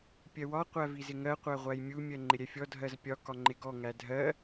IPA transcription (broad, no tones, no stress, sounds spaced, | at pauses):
pʲ ɜ w ɒ qʷ æ v i z ɪ ŋ ɜ qʷ æ ʁʷ æ j mʲ u mʲ ɜ ŋ͡ǃ ɪ ɾʲ ɛ fʲ ɔ dʱ ɜ z pʲ ɒ k ɒ ŋ͡ǃ ɪ ɡ ɔ ŋ æ dʱ ɜ